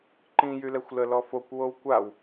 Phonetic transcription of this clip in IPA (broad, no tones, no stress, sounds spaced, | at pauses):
ǃ ĩ j y l ɛ xʷ l ə l ɔ f o kʷ w o w kʷ a w